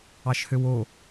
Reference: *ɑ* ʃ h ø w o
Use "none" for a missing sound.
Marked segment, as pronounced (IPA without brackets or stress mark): ɑ